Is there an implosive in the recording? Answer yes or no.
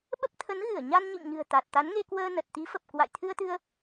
yes